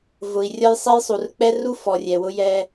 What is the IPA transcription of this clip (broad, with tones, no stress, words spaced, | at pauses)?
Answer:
vʊ˨i̯rʲɒ˦jsˤɛ˦jsˤu˨r k͡pɛ˦ru˦ fɔ˨rʲɛ˨wʊ˦ jɛ˦